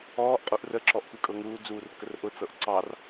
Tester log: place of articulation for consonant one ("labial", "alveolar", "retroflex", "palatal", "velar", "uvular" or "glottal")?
glottal